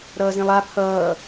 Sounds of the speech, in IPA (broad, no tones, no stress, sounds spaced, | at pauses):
ɾ ʌː z ĩ lˠ a pʰ ʌː